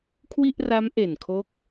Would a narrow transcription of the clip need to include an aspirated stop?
yes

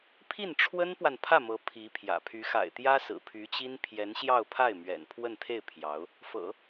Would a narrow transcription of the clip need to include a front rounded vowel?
yes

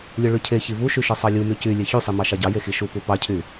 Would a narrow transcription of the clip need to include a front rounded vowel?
yes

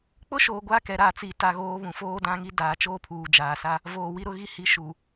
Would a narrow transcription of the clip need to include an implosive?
no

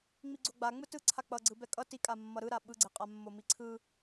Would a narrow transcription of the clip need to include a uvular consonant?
yes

